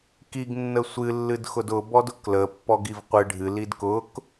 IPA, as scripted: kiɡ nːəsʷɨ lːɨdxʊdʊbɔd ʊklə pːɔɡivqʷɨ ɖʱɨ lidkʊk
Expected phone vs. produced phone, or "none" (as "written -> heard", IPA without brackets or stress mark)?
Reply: none